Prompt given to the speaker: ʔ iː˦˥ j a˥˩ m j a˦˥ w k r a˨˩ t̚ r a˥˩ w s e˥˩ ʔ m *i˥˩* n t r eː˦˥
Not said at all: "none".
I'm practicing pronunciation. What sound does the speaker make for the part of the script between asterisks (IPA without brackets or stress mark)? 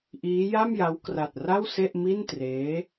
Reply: i˥˩